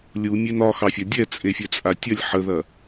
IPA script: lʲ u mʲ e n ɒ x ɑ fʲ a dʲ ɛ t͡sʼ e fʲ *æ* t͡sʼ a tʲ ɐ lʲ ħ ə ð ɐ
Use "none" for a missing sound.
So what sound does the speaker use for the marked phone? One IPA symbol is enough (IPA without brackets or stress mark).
ɛ